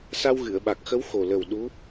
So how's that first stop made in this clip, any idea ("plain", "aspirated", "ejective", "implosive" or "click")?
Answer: implosive